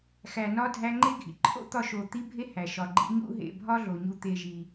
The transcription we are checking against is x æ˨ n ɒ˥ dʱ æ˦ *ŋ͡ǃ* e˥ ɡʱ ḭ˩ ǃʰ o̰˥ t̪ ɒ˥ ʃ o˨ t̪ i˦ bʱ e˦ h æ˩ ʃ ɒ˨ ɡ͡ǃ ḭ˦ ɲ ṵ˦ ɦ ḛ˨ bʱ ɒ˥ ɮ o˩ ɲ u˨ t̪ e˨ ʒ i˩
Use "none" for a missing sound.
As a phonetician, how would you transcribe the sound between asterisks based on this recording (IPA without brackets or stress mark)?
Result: ŋ͡ǃ